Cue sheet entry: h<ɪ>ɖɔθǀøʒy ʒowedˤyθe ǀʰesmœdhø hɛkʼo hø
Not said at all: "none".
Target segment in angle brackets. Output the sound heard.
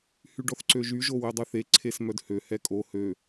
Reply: y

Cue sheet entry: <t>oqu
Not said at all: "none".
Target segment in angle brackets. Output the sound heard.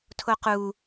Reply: tʰ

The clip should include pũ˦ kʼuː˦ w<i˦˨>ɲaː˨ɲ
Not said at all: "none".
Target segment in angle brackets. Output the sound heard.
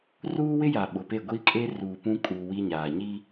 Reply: i˦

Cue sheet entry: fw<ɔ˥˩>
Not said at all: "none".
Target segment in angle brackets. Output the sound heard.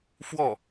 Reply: ɔ˥˩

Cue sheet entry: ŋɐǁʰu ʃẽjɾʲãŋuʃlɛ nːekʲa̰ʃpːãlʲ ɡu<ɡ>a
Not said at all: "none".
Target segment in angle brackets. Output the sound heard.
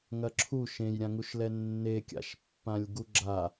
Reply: ɡ͡ǁ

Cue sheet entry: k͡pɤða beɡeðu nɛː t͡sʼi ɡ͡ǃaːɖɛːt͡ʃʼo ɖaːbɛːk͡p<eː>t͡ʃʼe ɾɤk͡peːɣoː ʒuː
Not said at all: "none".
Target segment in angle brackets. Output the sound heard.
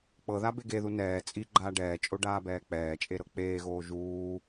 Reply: ɛː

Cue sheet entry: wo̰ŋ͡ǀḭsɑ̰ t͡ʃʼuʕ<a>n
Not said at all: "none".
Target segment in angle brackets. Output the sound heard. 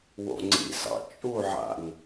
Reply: a̰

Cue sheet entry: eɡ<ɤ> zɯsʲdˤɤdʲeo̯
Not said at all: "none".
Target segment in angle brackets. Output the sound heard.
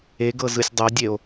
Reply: ɤ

